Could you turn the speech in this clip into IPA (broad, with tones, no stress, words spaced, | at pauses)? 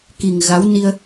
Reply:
ki˨˩ŋ ɣa˨˦w ni˧ə̯